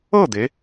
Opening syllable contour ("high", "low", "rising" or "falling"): falling